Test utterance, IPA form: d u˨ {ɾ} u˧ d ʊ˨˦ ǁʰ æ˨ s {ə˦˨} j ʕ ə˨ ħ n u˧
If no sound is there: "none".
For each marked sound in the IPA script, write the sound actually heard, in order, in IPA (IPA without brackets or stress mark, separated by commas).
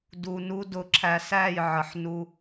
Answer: n, æ˦˨